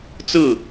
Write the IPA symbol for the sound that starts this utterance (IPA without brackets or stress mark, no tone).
t͡s